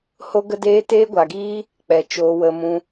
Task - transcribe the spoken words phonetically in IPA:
h o˦ ɡ ə˦ d eː˦ t eː˦ ɡʷ a˧ ɡ iː˦ | k͡p ɛ˨ t͡ʃ oː˧ w ə˧ m ũ˧

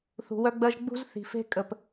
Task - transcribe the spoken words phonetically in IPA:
θ ṳ˨ w œ˦ ɡ͡b ɜ˦ ʒ ɡ͡b ṳ˦ z θ i̤˨ f e̤˦ kʼ ə˨ p

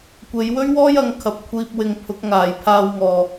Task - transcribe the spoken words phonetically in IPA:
kʷ e˨˧ j w ɵ˥ ɥ w ɔː˥ j ɐ˨˧ ŋ kʰ ɐ˨˥ p̚ kʷʰ iː˧ p̚ w ɪ˧ ŋ pʰ ʊ˨˥ k̚ ŋ aː˨ j pʰ aː˧ w ŋ ɔː˨

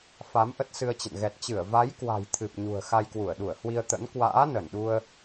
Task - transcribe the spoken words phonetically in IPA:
f a˨˦ m ʔ ə˦˥ t̚ s ɨ˧ ə̯ t͡ɕ ə̰˧˨ n ɣ ɛ˨˩ t̚ t͡ɕ ɨ˧˩ ə̯ v a˨˦ j k w a̤˨˩ j t̪ʰ ɨ˨˩ p̚ ɲ ṳ˨˩ ə̯ x a˧ j k w u˧˩ ə̯ ɗ u˧˩ ə̯ h w i˧ ə̯ t̪ ə̰˧˥ n k w a̰ː˧˥ n ə˧˩ n ɗ u˧ ə̯

